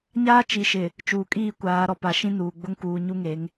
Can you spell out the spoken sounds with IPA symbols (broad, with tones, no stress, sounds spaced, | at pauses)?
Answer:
ɲ aː˦ t͡ʃ i˨ ʃ ɪ˨ | t͡ʃ uː˨ kʼ iː˦˨ kʷ aː˨˦ ɾ ɔ˨ p a˨˦ ʃ ĩ˦ n uː˨ ɡ͡b ʊ˦ ŋ k uː˨ ɲ u˦ ŋ e˨˦ ŋ